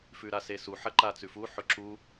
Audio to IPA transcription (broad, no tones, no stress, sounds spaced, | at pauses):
f ʉ ɾ a s e s u ħ ɐ ǃ a t͡s ʉ f u ħ ɵ ǁ u